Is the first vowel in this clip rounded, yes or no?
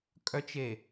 yes